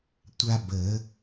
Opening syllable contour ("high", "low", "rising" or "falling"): high